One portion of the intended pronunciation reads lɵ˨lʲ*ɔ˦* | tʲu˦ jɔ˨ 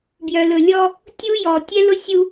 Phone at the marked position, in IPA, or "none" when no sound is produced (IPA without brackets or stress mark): ɔ˦